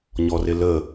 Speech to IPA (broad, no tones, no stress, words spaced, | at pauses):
ɲɔrɪlə